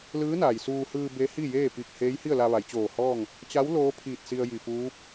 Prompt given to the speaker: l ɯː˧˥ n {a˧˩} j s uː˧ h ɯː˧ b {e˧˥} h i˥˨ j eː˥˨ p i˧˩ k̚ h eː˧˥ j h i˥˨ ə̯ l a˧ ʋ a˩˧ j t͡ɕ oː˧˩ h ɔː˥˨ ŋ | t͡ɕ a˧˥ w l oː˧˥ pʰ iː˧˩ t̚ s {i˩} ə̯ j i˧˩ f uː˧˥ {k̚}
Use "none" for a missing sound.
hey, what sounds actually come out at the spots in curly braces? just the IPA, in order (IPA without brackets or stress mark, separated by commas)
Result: a˩, e˧˥, i˧, p̚